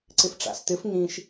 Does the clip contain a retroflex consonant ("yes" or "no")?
yes